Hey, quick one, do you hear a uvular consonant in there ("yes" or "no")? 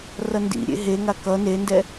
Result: no